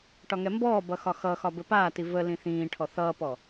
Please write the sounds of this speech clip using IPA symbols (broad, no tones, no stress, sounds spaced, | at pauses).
ʈ ɒ ŋ ɛ m b ɔː b ʌ x ɒ x ʌ x ɒ b ɘ p aː t i v ə l ĩ θ ĩː ʈʰ ɔ θ ʌː p ɔ